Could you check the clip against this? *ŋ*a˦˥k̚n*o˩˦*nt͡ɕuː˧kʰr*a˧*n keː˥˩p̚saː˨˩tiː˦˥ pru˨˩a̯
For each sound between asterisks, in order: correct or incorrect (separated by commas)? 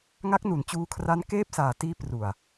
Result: correct, incorrect, incorrect